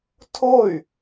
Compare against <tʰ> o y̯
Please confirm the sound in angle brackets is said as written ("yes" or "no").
yes